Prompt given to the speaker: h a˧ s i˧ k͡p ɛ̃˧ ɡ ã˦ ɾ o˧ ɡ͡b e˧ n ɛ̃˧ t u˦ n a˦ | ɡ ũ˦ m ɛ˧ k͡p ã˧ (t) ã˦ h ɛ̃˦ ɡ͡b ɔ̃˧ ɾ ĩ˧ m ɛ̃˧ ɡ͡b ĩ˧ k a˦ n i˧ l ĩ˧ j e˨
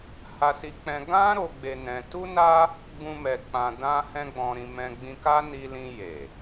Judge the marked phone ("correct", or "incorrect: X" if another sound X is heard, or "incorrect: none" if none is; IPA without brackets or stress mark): incorrect: d